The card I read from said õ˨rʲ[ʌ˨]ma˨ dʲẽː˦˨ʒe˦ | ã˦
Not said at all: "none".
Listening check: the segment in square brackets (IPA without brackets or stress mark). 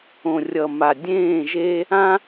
ʌ˨